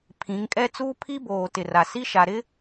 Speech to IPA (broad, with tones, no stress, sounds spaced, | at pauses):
pʰ ĩ˨˦ ŋ kʼ ɛ˦ t͡s uː˦ pʰ i˦ b oː˨ t ɪ˨ r a˨ s i˦ ʃ a˨ ɾ ɪ˦